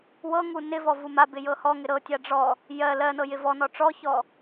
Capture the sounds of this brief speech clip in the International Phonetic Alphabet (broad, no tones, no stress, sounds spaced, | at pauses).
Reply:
w ɤ ŋ u n ɪ v ɔ v u m a b ɪ j ɤ h ɔ ŋ ɪ ɾ ɤ tʲ a ɖ͡ʐ ɔ | j ɜ l ɜ n ɤ j ɪ v ɔ n ɔ ʈ͡ʂ ɔ ç ɔ